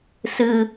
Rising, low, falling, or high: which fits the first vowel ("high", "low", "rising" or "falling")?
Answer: low